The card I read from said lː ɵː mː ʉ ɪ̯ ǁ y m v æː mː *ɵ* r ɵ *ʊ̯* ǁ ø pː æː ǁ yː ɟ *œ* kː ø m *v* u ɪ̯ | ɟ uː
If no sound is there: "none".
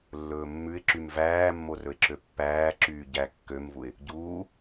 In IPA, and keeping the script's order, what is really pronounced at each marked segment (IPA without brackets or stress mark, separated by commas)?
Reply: o, ɪ̯, æ, v